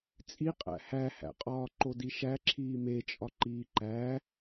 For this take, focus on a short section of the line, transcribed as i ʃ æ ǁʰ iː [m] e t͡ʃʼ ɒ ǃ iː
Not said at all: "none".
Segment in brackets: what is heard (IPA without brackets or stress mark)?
m